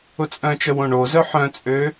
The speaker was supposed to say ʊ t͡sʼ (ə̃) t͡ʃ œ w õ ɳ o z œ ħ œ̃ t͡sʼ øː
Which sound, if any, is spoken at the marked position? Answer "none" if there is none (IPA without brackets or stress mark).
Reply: œ̃